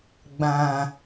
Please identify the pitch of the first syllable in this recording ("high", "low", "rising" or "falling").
low